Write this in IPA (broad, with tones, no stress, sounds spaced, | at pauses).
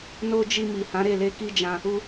n o˦ d͡ʒ i˧ m i˨ h ã˨˦ ɾ e˦˨ l e˧ k i˦ d͡ʒ ã˧ | u˦